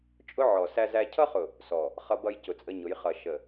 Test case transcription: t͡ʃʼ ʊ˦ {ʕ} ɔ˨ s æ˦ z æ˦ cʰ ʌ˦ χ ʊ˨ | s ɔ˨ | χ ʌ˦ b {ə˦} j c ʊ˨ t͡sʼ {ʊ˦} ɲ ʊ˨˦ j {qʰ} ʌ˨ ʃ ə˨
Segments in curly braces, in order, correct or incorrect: correct, incorrect: ʌ˦, incorrect: ə˦, incorrect: χ

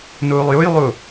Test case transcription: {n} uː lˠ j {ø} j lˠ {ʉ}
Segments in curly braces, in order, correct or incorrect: correct, incorrect: u, incorrect: u

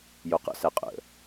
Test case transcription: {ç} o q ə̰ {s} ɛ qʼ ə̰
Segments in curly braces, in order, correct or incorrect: incorrect: j, correct

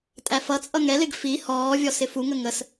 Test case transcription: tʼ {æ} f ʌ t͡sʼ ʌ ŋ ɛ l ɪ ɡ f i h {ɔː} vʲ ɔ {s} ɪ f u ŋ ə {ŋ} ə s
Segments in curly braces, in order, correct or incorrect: correct, correct, correct, correct

